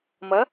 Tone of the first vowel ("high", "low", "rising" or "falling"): rising